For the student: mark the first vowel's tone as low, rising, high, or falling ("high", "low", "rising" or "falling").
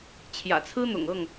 low